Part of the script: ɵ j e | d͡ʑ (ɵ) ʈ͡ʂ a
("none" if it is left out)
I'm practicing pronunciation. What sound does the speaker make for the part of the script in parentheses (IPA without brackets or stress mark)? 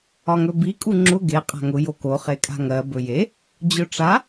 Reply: ɵ